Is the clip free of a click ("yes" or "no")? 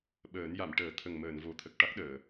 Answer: yes